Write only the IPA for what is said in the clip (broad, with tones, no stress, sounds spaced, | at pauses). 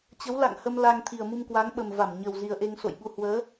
t͡ɕ ə˨˦ w l a̰˧˨ ŋ h ə˧ m l a˧ ŋ t̪ʰ i˨˩ ə̯ m u˧ m k w a˨˦ ŋ ɓ ə˨˩ m v a˧˩ m ɲ ə˨˩ w z i˨˩ ə̯ ʔ e˧ ŋ s o̰˧˨ j ɓ u˧ h w əː˨˦